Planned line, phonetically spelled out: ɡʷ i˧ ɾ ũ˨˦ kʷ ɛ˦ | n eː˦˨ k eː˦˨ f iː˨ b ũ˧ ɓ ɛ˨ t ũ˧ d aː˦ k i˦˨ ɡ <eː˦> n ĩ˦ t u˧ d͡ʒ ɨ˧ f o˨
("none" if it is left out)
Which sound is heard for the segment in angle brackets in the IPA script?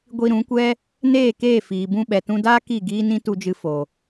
iː˦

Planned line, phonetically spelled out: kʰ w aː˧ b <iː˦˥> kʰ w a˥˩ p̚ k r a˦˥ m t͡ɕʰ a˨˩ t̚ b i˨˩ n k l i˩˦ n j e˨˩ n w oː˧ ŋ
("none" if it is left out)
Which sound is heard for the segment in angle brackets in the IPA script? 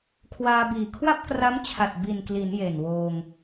iː˨˩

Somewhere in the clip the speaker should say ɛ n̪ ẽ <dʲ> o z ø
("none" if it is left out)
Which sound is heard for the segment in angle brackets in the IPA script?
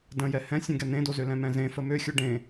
d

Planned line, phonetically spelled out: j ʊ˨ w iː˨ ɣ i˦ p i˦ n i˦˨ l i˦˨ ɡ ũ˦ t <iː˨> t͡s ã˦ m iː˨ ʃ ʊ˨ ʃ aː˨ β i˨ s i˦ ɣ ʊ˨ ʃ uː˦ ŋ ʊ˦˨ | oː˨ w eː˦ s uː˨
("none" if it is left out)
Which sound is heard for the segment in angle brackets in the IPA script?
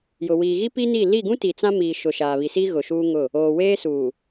i˨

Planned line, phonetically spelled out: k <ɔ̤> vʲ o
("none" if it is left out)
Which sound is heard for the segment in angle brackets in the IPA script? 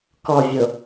ɔ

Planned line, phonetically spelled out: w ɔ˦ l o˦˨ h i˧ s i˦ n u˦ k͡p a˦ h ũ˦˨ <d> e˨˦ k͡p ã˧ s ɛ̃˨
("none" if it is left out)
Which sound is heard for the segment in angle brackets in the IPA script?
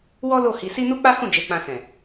d͡ʒ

